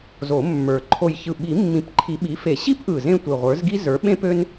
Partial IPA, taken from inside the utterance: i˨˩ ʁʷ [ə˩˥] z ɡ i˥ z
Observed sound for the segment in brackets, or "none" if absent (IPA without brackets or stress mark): ə˞˩˥